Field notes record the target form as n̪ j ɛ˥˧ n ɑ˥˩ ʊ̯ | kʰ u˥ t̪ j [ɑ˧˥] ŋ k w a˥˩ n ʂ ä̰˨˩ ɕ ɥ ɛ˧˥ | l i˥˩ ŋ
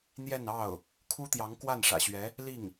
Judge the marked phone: correct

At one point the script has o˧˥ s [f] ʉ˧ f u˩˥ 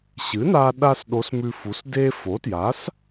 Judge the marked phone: incorrect: m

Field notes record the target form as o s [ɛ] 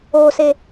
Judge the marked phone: incorrect: e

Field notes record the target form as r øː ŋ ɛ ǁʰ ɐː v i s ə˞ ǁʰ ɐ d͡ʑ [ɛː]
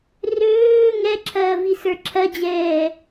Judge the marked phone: correct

